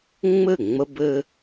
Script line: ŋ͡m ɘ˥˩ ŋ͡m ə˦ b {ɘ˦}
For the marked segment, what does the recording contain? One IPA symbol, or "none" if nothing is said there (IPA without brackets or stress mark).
ɘ˦